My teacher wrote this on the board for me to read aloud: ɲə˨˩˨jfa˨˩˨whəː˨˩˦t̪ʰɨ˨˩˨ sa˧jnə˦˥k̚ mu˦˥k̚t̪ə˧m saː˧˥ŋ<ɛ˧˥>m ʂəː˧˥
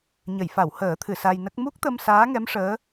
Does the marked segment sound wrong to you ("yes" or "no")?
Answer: no